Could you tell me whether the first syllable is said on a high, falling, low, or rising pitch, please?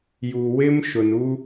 low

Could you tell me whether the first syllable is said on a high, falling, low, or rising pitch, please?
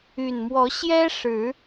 low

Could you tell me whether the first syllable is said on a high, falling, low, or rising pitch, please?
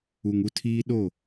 low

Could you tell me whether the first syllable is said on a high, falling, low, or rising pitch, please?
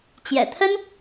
low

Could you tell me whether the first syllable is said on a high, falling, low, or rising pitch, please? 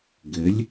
rising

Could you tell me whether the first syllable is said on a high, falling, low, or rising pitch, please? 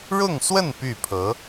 falling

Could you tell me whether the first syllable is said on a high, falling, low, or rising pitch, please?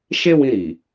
high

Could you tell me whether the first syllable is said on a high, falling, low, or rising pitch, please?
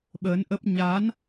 rising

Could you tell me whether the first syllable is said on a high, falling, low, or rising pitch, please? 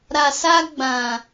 low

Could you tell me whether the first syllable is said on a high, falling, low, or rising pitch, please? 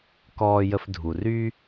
low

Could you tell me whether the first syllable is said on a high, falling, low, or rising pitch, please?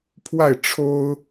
falling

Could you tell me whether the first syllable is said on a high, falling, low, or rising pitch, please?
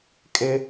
high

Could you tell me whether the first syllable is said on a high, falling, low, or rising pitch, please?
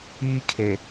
high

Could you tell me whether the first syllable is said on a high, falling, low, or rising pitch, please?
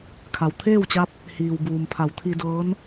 low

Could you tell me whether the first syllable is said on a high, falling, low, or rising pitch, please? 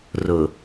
low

